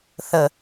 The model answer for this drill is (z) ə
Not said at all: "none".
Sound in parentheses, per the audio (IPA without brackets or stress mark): θ